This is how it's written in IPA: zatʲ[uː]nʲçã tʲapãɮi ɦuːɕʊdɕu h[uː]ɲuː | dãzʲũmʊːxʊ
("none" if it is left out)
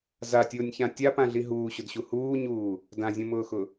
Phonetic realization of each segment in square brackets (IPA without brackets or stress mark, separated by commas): ʊː, uː